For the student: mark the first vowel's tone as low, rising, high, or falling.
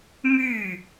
falling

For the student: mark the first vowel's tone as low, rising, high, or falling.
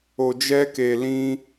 low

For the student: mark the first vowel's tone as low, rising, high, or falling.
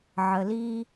low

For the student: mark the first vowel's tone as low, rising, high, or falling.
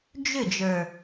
falling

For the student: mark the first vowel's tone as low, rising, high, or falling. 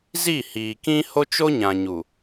falling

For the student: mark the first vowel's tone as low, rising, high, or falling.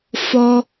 high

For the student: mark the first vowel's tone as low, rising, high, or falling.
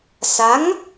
rising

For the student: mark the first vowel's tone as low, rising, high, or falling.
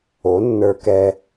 rising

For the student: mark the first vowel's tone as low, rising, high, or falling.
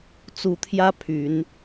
rising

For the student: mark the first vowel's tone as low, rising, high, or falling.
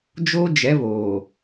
high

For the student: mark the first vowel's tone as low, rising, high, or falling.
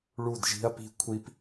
falling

